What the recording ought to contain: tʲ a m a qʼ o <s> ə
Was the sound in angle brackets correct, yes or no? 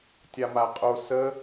yes